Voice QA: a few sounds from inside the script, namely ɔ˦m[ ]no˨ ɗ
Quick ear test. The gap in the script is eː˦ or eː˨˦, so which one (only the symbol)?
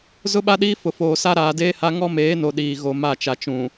eː˨˦